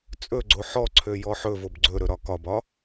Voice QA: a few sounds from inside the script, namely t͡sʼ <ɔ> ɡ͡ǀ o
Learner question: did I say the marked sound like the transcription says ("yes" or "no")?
no